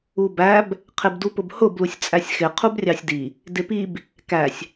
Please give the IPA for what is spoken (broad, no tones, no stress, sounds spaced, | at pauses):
u b æ b | qʰ ɪ b d u p ʊ b h ʊ b l u sʲ t͡sʼ æ sʲ x ɪ qʰ u b rʲ ɑ sʲ d i | d ɪ p i b | k æ sʲ